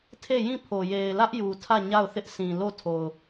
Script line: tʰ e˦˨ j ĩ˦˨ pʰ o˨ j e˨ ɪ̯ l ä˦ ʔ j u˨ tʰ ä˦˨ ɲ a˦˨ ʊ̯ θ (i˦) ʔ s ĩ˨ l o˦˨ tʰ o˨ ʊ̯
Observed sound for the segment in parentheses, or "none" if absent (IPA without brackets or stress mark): ɪ˦